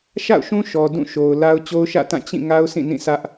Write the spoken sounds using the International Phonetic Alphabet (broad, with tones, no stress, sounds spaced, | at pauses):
ʃ a̰˦˨ ʊ̯ ʃ ũ˦ ʃ ɔ˨ d ũ˦˨ ʃ o˨ ʊ̯ l a˦ ʊ̯ t͡ɕ o˦ ʊ̯ ʃ ä̰˦˨ t ã˦˨ t͡ɕ ĩ˦˨ ŋ a˦ ʊ̯ sʰ ĩ˦˨ n ĩ˦˨ sʰ ä˦ ʔ